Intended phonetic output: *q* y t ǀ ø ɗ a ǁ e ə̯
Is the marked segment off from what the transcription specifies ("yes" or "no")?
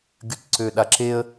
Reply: yes